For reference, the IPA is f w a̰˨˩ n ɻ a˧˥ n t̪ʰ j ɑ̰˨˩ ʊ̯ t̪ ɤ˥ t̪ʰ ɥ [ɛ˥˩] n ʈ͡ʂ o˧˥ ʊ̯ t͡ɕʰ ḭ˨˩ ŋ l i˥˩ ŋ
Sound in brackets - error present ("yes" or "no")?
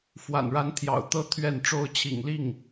no